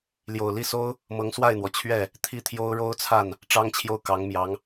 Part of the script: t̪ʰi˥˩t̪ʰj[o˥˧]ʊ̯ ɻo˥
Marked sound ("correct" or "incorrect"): incorrect